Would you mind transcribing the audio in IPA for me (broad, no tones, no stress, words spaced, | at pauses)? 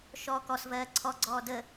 ʃɔ kɔsvɜː ǀʰɔɡ͡ǀɔː də